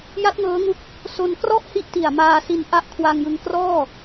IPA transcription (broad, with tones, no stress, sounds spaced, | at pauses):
j a˦˥ t̚ ŋ ɤː˦˥ ŋ u˦˥ k̚ | s o˧ n k r ɔ˥˩ ʔ h i˦˥ ʔ t i˨˩ a̯ m aː˧ s i˧ n ʔ a˦˥ ʔ kʰ w a˧ ŋ j ɯ˧ ŋ k r ɔː˥˩